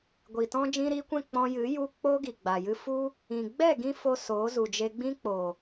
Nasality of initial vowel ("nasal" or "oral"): oral